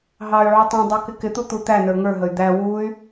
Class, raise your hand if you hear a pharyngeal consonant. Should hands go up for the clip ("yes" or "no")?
yes